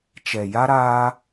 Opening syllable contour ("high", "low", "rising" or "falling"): low